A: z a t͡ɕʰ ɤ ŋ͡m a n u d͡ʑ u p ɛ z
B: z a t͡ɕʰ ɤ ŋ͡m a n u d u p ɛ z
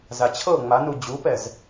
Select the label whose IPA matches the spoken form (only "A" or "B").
A